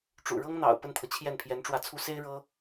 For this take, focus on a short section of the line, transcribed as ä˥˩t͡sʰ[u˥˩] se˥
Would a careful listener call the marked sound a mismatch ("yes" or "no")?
yes